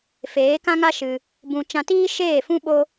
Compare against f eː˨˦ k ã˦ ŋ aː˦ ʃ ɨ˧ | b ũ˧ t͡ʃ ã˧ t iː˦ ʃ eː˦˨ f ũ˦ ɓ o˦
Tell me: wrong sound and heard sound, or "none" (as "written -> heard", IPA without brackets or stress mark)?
aː˦ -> a˦